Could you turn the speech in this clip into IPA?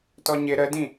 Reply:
tɔɲɪ ɾədĩ

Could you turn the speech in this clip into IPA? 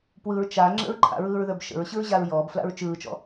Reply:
pwɯɹ t͡ʃa ŋ͡ǁə̰ɹǃʰa̰ɹɯːɹðə˞b ʃə̰ɹɕɯɹʑaɹ jɔːbfla̰ɹ t͡ʃɯːt͡ʃɔ̰

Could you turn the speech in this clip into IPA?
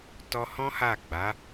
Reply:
tɔ˧hɔ̃˦ ha˦˨ɡ͡ba˨˦

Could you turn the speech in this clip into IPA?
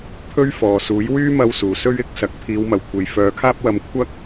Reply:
pʰɵ˥ɥfɔː˨ suː˨˥jwyː˥mɐ˧w suː˨sɵ˥ɥ ɪ˧k̚ sɐ˨˥k̚ pʰiː˨˧wmɐ˨wkʷʰe˨j fœː˨˧kʰaː˥p̚wɐ˧m kʷʰɐ˥k̚

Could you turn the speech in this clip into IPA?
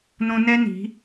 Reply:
nõ˦ nɛ˦ni̤˨˦

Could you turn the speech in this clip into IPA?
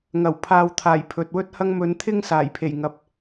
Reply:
ŋɐ˨˩w pʰaː˨wt̪ʰaː˨˩j pʰɵ˨t̚ wɵ˥t̚hɐ˥ŋ mɵ˨˧nt̪ʰɪ˥ŋ saː˨˩j pʰe˨˩j ŋɐ˨p̚

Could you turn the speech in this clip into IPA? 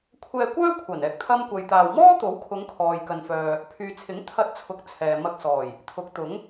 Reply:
kʷʰɛː˧kʷœː˥kʷʰɐ˨˩n ɛː˧k̚t̪ʰɐ˥mkʷɐ˧jt̪aː˧w mɔː˥t̪o˨˥wkʰʊ˨˧ŋ kʰɔː˨jkɐ˨nfœː˨ | pʰyː˨t͡sʰɪ˨˥ŋ t̪ʰɐ˧t̚t͡sʰʊ˨˥k̚ t͡sʰɛː˨mɐ˧k̚sɔː˨˩j | t̪ʰʊ˨˥k̚t̪ʊ˨˥ŋ

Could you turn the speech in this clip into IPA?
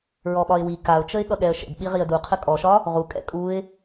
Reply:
ɹɔɓɒɪ̯wi kaʊ̯t͡ʃəɪ̯ ɠʌɠɛə̯ʃə̰d ɓiʁiə̯duqʰə kʼɔʃɒ | ʁu kʼɛ̰kʼuɪ̯

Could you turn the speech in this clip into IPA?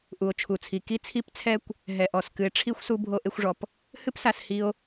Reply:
ʔu˩o̯t͡ʃʰu˩t͡sʰi˩ ki˦t͡sʰi˦pt͡sʰɛ˦kʷ | ɦɛ˩ʔɔ˩s kɨ˨e̯ʈ͡ʂʰi˥xʷsu˦ bʱo˦ʔe˦xʷʐɔ˩p | hɨ˥psa˨s hi˥o̯

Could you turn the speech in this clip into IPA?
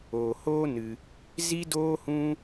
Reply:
oː˨hoː˦ nɨ˧ | zi˦doː˦hũ˦

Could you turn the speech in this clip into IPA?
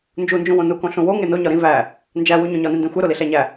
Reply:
nd͡ʒund͡ʒũwõ nukõ ɬũwo ŋeno ɲɒɾĩ væ | nd͡ʒæwu ɲõɲɒnẽndẽ xʷeɾoli ɬæɲæ

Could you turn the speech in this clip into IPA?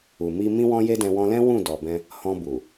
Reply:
u˨mi˧ mĩ˦wɔ̃˦je˦dɛ̃˧ wɔ̃˧lɛ̃˦ wũ˦˨ dɔ˨bɛ̃˧ | hɔ̃˧bu˨

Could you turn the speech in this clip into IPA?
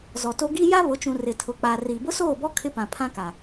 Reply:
zɔ˨to˦ ɡi˦ ja˦βʊ˨˦t͡ʃũ˨ rɪ˨tʰʊ˨ k͡pa˨ ri˨ bʊ˦soː˦˨bɔ˦ kʰɪ˦pã˨pʰã˦ka˨

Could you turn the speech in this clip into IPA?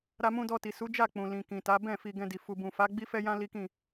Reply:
ɾa˧mũ˧dɔ˧ti˨ su˨˦d͡ʒa˦˨ k͡pũ˨lĩ˨kĩ˨ta˨˦ bɛ̃˦˨ fi˧ɡɛ̃˧di˨ fu˨bũ˨fa˨˦ ɡ͡bi˦fɛ˦jã˦ li˦kĩ˦˨

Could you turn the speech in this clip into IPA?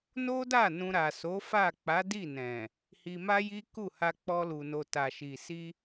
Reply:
no˦da˦˨ nũ˧ ɾa˨so˨˦ fa˦˨ k͡pa˨˦di˦˨nɛ̃˨ | hi˧ma˦ji˦ku˦˨ ha˧k͡pɔ˧lu˨no˨ ta˨ʃi˨ si˧

